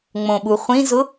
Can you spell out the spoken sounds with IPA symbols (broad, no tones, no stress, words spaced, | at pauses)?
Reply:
ŋ͡mõɓuχʷĩzʊ